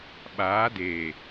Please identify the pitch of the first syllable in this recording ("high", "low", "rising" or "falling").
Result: rising